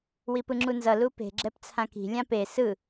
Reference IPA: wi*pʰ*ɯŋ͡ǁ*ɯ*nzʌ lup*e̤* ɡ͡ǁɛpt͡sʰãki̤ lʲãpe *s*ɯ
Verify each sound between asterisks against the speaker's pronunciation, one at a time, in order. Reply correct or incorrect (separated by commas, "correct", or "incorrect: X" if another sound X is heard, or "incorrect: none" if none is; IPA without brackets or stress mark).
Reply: incorrect: p, incorrect: u, correct, correct